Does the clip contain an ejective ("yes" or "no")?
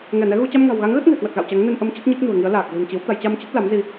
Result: no